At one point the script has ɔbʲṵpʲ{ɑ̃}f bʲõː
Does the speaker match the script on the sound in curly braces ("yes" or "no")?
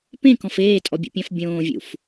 yes